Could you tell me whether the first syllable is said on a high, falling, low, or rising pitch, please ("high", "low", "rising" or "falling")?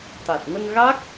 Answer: low